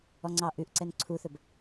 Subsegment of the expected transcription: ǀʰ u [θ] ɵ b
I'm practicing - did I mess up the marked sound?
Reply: no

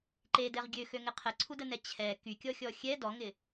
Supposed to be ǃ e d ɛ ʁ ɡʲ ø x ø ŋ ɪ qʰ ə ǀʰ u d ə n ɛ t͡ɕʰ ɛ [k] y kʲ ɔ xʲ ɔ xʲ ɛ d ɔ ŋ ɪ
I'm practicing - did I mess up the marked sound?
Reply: no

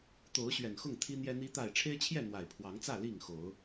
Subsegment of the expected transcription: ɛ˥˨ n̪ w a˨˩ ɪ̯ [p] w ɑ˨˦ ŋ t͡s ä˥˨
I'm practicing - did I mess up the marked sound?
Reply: yes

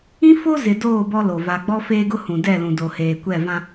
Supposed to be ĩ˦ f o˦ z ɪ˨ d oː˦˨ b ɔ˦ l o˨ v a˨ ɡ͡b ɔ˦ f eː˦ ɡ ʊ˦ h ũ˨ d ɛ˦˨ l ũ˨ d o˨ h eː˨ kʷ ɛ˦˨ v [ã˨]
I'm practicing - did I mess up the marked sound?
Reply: yes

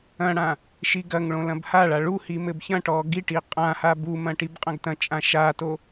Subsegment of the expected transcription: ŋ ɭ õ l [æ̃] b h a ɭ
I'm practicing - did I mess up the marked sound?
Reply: yes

